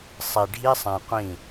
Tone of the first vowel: low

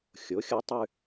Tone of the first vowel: rising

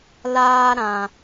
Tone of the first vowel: high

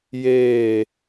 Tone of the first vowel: falling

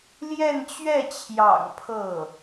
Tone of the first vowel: falling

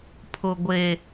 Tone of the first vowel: low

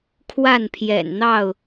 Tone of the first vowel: falling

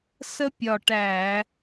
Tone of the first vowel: high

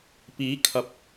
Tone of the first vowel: rising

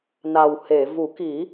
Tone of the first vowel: low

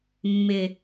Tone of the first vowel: low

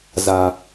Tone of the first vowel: high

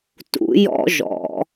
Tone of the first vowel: rising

